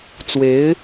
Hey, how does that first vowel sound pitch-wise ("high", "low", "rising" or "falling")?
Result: rising